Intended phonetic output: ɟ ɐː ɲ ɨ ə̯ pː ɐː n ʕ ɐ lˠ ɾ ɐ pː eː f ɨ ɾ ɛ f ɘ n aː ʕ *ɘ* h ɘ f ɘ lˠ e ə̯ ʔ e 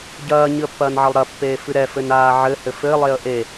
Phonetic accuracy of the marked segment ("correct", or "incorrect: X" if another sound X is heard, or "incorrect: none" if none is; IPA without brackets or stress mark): correct